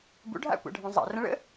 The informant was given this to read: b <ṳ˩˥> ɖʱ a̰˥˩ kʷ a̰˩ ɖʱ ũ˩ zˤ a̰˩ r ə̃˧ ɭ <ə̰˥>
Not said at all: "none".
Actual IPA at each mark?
ṵ˩˥, ə̰˥

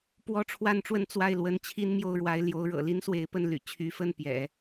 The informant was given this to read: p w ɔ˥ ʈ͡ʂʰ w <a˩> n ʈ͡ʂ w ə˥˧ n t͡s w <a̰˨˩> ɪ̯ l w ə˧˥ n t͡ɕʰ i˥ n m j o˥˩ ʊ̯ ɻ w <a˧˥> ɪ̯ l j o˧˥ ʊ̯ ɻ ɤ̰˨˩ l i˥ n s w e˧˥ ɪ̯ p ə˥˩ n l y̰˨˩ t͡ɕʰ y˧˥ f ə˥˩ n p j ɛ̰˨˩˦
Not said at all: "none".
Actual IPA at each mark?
a˥, a˥˩, a˧˥

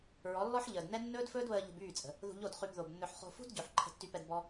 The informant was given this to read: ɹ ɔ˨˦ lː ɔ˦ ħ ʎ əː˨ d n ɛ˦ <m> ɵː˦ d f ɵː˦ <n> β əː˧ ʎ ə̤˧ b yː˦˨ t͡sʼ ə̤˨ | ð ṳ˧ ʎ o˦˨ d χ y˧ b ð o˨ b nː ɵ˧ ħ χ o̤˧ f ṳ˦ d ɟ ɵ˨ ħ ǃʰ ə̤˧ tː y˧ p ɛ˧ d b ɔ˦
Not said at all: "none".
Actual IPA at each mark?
nː, d

